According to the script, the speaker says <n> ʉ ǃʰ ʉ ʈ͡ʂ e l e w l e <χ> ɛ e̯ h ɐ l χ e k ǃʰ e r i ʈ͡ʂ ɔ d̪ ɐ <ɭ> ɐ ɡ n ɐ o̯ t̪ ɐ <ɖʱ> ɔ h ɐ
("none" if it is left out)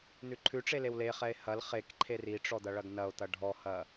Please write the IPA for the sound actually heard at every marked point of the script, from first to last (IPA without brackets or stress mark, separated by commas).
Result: n, χ, ɭ, ɖʱ